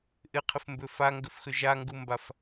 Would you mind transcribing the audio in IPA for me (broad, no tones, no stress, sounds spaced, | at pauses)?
ʔ ɪ qʰ ɪ f m b ʏ f a ŋ ɡ ʏ f x ʏ ʒ a ŋ ɡ u m b a f